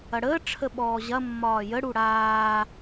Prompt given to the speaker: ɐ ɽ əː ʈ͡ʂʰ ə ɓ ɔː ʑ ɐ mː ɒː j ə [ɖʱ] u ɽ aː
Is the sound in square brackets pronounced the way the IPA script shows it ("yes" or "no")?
no